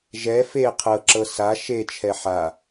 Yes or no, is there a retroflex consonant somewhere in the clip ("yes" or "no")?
no